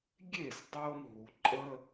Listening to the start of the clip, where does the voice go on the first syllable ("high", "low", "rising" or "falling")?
falling